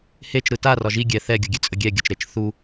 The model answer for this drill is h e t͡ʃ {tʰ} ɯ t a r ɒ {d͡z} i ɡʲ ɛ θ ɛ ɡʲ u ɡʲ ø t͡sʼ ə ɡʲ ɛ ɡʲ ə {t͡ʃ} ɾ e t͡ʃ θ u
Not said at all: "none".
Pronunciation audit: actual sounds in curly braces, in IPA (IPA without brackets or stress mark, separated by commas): ɾ, ʒ, t͡ʃ